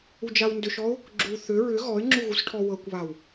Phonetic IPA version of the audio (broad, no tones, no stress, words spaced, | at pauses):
ud͡ʒawndʏʃɔʊ̯ | ɡ͡ǁu θʏ ɹʏ ɣɔɪ̯ŋ͡ǁu ɣusʈʰɔwɤkʷβaw